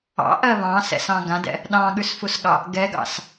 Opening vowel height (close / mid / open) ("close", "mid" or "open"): open